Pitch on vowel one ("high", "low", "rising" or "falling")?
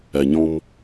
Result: low